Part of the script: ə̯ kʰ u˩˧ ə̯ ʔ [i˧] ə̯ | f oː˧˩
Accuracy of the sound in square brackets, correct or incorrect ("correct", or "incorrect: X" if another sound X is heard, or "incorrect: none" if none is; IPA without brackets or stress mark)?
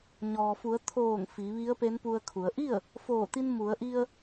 incorrect: i˥˨